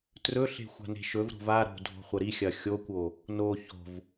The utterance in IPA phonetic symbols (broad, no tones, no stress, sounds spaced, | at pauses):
t r ɵ ɬ e̤ xʷ a̤ n e̤ ʃ ɵ v ɾ o̤ v a ɾ o̤ dʱ o̤ χʷ ɐ ɾ i xʲ ɐ xʲ o kʷ o | n o ç o̤ v